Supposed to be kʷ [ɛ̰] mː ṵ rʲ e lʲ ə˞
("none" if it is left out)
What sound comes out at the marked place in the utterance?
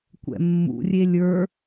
ɛ̰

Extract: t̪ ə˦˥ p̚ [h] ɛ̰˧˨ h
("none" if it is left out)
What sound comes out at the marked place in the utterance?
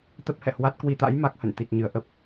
h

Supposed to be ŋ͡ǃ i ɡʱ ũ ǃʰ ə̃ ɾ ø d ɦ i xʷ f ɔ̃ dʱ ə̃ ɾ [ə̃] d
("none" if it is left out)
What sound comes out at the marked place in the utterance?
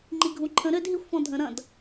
ɐ̃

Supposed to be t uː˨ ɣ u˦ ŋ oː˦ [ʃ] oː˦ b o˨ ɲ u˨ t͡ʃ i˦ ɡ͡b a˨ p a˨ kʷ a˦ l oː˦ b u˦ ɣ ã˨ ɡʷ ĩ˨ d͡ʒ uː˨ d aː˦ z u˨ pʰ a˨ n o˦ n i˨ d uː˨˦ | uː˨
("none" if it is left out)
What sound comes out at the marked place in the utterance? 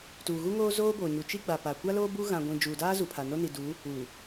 z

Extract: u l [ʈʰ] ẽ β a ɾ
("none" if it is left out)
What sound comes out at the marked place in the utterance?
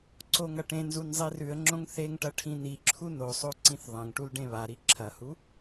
ɖ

